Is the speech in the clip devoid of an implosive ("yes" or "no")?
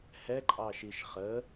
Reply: yes